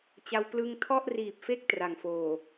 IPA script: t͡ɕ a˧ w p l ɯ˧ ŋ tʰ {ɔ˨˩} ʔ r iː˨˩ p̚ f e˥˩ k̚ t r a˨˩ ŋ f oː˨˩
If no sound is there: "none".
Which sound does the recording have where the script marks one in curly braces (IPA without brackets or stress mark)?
ɔ˥˩